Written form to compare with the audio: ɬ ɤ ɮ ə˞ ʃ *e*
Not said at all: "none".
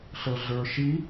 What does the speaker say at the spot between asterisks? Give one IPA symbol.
i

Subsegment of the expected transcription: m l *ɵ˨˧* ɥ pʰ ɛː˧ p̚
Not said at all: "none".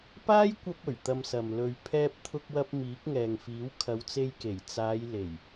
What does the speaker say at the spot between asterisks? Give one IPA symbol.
ɵ˨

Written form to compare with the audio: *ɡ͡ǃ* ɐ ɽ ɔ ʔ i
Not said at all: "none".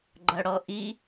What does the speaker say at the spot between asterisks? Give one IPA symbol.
ɡ͡ǃ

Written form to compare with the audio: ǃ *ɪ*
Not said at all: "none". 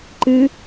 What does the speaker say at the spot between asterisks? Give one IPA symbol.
ɨ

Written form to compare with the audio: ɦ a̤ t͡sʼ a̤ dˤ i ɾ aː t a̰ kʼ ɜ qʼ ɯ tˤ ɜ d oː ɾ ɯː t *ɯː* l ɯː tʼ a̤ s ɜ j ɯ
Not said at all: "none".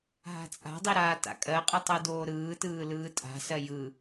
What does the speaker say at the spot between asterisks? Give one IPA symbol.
ɯː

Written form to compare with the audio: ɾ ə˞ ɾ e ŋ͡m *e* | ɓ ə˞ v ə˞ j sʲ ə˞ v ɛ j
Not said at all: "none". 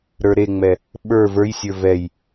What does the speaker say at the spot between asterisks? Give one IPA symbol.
ɛ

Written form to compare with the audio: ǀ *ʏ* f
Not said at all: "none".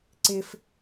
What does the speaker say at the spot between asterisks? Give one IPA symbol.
ɪ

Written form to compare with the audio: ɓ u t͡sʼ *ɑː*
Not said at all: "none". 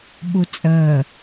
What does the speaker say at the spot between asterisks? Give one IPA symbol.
əː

